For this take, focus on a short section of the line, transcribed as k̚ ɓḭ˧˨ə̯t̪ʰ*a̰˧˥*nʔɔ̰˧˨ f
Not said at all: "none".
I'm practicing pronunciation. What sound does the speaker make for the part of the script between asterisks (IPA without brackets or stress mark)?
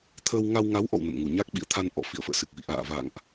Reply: a˧